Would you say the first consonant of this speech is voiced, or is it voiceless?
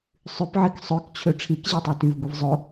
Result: voiceless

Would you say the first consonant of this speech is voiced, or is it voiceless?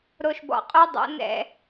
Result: voiced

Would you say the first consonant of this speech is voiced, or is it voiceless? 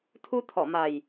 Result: voiceless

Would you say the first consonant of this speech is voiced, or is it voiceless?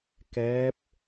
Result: voiceless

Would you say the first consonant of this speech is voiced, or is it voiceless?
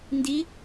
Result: voiced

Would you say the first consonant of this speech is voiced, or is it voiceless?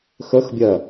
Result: voiceless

